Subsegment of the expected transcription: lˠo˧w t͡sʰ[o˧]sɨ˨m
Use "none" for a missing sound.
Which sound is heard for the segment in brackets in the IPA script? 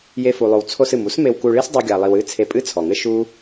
o˧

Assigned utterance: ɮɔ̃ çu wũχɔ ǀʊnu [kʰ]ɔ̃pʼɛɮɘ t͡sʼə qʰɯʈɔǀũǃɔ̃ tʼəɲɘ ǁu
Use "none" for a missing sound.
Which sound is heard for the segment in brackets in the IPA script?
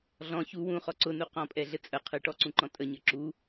q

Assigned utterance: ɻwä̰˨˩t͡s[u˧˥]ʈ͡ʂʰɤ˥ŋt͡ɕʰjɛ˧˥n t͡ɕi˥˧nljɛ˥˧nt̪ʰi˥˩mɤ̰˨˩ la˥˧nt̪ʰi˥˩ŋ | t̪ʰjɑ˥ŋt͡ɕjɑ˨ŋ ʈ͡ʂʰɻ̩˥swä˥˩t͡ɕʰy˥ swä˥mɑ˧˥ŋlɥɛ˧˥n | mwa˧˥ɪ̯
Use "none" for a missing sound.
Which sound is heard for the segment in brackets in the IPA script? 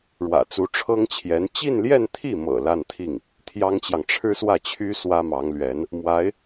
u˧˥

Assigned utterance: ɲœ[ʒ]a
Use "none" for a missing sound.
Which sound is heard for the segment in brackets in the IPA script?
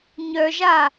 ʒ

